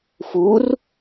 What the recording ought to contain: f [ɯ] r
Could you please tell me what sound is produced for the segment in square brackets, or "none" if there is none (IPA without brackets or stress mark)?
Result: u